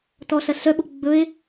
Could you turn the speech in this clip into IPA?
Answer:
t ɔ ɬ ɐ ɬ œ ɓ o ɡ͡b ɵ e̯

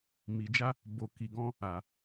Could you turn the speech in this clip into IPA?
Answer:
m i˨ d͡ʒ a˧ | b o˨ k i˨ ɡ ɔ̃˧ | a˨

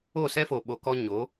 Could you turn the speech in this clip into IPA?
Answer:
o˦˨ s ɛ˦ f o˨ ɓ o˨ k ɔ˧ ɲ o˨˦

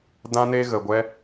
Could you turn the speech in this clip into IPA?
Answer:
d ã˦ n e˦ ɣ ə˧ ɡʷ ɛ˦

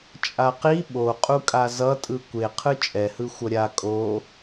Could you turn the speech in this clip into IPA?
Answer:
t͡ʃʼ a q i ɓ o qʼ u kʼ a z ʌ tʼ ɯ kʷ e qʰ ɯ t͡ʃʼ ɛ h ɯ xʷ ʌ ɾʲ a kʼ o

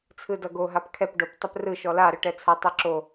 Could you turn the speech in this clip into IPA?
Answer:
t͡sʰ ɯ d ʌ ɡ o ɦ a p kʰ ɛ p ɖ o p tˤ ɛ p r ɯ ʃ ɔ l a ɾ ɯ ʈ ɛ t͡sʰ a tˤ ɛ ǁ o

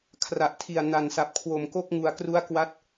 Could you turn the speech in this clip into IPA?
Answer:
kʰ r a˨˩ ʔ tʰ i˨˩ a̯ n a˨˩ n s a˨˩ p̚ kʰ w o˨˩ m k o˥˩ k̚ ŋ u˧ a̯ k r u˦˥ a̯ k w a˦˥ t̚

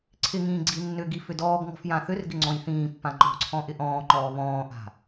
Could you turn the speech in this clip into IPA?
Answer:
ǀʰ ɪ ŋ ĩː ɡ͡ǀ i nː ʏ ɡ i f ʏ d ɔː ɡ ŋ ɔ̤ f j ã θ ʏ r ɡ ɪ ŋ͡ǀ ɔ̃ j θ ĩː pː ã ŋ͡ǃ ɔ̤ ǀʰ ɔ̃ ʔ ɪ ʔ ɔ̃ː ŋ͡ǃ ɔː β ɔ̃ː ʔ a̤

